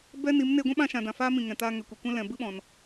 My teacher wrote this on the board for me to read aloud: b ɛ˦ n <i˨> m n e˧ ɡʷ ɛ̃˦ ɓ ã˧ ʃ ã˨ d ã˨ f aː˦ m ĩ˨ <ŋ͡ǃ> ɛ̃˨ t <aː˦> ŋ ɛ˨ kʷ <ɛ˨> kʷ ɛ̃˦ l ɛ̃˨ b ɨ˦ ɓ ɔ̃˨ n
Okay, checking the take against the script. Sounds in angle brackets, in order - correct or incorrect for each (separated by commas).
incorrect, incorrect, incorrect, correct